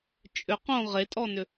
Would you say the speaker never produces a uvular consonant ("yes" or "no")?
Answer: no